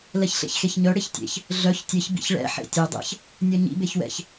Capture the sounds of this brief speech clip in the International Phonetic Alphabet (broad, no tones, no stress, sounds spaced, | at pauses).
l ɛ ç ɬ ḛ ç x e ç ɲ œ ɽ e ç tʲ ḛ ç | ɮ œ ç tʲ ɘ ç b ḭ ç ɭ ɛ̰ ħ ḛ tʲ ɘ dˤ ɛ̰ ç | nʲ œ ɲ ḭ b e ç w ɛ̰ ç